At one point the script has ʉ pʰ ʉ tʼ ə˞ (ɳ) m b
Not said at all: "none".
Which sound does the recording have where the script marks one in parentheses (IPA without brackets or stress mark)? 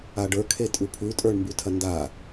ɳ